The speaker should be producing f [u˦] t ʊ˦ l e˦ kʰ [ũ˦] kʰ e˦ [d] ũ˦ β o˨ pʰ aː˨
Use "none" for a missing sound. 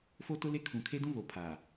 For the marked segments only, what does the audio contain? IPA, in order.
o˦, ũ˨, d

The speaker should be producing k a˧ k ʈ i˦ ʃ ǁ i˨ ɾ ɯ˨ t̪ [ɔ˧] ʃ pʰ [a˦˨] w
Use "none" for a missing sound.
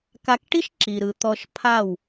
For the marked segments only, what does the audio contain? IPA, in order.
ɔ˧, a˦˨

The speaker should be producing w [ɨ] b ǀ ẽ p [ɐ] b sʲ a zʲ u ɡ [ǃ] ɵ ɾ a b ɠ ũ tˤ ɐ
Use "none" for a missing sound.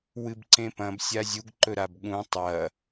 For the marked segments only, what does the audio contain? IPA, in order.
ɨ, ɐ̃, ǃ

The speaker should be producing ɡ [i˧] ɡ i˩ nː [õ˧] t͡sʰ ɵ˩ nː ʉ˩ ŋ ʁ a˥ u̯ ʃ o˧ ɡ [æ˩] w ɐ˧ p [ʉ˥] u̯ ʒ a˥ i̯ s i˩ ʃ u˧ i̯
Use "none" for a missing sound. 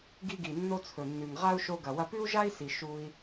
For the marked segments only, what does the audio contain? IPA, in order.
i˧, o˧, ɐ˩, ʉ˥

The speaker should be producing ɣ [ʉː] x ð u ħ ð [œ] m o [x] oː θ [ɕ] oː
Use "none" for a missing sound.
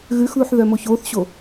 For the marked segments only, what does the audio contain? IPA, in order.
ʉ, œ, ç, ɕ

